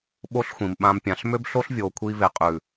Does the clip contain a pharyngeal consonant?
no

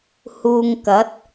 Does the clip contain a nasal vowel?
no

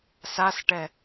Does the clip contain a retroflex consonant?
yes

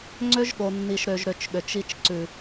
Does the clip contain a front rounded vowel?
yes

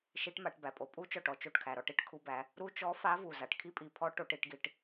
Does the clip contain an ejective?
yes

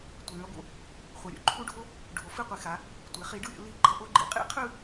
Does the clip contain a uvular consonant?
yes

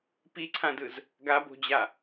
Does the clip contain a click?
yes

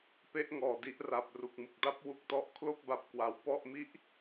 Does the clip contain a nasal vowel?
no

